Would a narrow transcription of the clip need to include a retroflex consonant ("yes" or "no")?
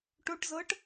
yes